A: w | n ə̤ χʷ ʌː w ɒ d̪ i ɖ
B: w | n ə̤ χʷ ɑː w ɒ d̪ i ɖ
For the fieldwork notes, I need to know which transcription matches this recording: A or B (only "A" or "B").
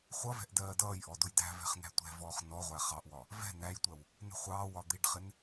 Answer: B